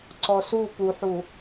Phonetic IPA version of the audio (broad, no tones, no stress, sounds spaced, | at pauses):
ǀ ɔ s u p u ħ u